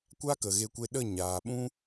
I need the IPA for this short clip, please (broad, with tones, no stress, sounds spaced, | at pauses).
kʷ a˦ k ə˨ ɣ e˧ kʷ e˧ ɗ ə˦˨ ɲ aː˨ ɓ ũ˦